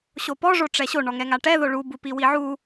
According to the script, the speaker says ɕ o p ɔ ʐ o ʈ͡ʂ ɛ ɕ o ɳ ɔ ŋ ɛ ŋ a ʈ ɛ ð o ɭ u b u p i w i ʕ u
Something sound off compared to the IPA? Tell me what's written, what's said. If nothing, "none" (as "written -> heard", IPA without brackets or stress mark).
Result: none